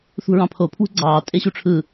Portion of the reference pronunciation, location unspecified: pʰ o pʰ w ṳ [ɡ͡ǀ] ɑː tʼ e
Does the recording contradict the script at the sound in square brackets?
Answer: no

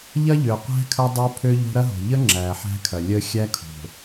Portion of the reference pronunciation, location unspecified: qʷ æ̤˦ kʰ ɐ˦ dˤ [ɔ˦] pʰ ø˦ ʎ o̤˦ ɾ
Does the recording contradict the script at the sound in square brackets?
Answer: yes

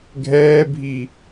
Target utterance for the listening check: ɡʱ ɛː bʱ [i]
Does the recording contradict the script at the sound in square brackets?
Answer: no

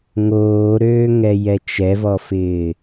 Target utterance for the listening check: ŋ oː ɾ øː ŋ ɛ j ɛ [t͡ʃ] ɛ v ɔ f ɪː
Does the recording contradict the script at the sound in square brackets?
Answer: no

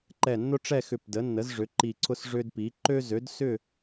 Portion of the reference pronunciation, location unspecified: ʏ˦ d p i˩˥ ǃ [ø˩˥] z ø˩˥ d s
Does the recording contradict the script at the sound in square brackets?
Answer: yes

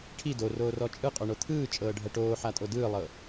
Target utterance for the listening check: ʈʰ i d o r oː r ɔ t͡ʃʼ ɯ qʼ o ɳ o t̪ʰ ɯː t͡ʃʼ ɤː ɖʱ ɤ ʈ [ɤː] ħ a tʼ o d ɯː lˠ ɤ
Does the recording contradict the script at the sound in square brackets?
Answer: yes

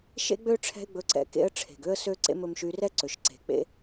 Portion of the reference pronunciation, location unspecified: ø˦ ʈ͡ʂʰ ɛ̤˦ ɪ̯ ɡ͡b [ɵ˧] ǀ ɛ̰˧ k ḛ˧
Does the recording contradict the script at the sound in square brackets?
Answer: no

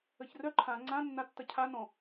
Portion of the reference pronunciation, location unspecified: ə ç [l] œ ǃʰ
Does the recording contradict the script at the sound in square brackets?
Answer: yes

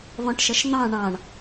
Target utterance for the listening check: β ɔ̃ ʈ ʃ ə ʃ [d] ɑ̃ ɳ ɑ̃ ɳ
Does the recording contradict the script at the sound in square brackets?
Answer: yes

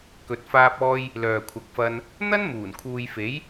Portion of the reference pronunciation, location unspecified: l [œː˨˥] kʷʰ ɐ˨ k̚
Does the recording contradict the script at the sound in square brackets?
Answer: yes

